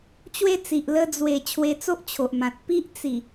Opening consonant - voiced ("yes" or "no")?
no